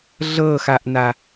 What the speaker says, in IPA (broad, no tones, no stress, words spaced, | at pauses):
ɮɤxaʔna